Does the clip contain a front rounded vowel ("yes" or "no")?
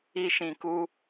no